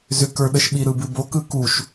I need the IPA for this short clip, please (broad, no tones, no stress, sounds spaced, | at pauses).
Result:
z ʏ k ə˞ ɗ ə ʃ ɓ i ɾ ɯ b ɨ b o k ɯ k u ʃ